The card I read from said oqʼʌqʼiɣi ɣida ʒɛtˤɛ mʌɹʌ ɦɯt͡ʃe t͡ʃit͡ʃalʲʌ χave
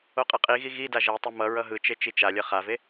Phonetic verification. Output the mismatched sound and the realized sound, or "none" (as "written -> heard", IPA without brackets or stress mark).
none